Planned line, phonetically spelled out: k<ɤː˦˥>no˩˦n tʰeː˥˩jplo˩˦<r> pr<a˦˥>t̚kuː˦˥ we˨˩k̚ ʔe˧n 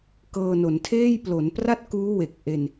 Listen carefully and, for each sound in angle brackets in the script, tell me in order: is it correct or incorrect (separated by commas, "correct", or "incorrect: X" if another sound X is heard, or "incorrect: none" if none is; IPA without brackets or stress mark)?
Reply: incorrect: ɤː˧, incorrect: n, incorrect: a˥˩